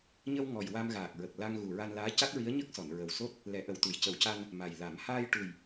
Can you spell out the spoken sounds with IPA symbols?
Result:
ɲə˧w ŋɔ˨˩jwa˧mɣaː˨˩k̚ɹə˨˩k̚ la˧ŋɣu˨˩ ɹa˧nlaː˧˥ ca˦˥t̚ɹi˧˥ə̯ɲə˦˥k̚sɔ˨˩˨n ɹə˨˩wso˦˥t̚ | lɛ˨˩˦ʔə˨˩w t̪u˨˩˨jcə˨˩˦wca˧n | ma˨˩jla˨˩˦m haː˧jʈu˨˩j

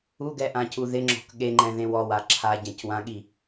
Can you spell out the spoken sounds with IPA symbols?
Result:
uɡɛʔãcu ðɪŋ͡ǁɔ̤k ɠeŋ͡ǃɛ̃ðẽw ɔwa ǁʰaɟɛ̃cwãɠi

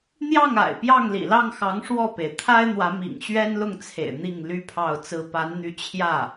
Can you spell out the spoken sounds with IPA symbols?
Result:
n̪jɑ˥˩ŋa̰˨˩ɪ̯ pjɑ˥˩ŋlḭ˨˩lɑ˥˩ŋxɑ˧˥ŋ ʂwɔ˥˩pe˩ɪ̯ t̪ʰa˥ɪ̯n̪wä˧˥ mḭ˨˩ŋɕɥɛ˥nlʊ˥˩ŋt͡sʰḛ˨˩ɪ̯ n̪i˥˩ŋly˥pʰɑ˥˩ʊ̯t͡sɹ̩˥ pa˧˥nn̪y˧˥t͡ɕʰjä˥˩

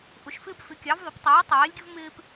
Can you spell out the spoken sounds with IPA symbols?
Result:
ʔʊ˨˥ʃfɪː˥p fɪ˨˥kʲɑ˨˥vðˤɪ˨˥p tˤiː˨˥tˤɛː˨˥lʲɡʲʊ˥v mɪː˥p

